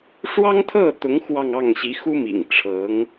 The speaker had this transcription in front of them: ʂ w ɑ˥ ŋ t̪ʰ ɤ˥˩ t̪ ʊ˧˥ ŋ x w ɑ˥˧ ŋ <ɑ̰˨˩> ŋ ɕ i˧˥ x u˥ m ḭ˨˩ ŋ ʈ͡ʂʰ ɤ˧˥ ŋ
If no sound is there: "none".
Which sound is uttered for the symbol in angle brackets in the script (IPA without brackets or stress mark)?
ɑ˥˩